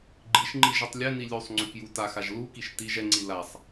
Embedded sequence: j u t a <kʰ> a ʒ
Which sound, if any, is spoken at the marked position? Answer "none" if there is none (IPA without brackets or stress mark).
x